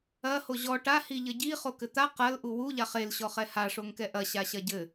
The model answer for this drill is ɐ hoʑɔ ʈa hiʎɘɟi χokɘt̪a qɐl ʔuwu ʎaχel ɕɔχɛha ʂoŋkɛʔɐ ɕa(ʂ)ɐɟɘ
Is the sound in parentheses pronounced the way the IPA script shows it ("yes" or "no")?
no